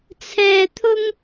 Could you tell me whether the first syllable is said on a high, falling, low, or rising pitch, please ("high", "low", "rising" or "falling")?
high